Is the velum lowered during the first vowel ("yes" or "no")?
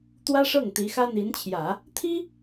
no